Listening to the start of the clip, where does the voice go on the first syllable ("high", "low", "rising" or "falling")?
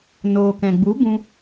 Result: low